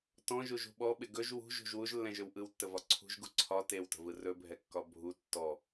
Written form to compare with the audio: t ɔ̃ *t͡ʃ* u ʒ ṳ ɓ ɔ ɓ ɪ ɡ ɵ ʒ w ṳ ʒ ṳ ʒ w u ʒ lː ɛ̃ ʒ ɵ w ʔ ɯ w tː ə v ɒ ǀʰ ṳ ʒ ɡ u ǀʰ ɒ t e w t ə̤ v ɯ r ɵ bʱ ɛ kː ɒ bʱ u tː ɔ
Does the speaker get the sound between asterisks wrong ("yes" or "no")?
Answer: yes